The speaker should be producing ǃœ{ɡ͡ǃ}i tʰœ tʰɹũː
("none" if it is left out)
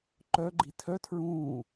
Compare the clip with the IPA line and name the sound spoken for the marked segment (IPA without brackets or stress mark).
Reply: ɡ͡ǃ